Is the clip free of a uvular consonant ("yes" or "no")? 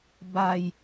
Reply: yes